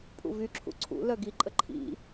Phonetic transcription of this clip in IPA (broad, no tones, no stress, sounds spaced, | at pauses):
pʼ ṵ v y ǁʰ ṵ ǀʰ ṵ l œ ɡ i ǃʼ ə ǃʰ ḭ